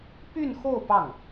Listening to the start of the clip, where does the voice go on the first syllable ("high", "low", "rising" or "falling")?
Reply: falling